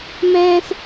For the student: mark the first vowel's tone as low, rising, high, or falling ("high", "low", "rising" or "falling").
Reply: high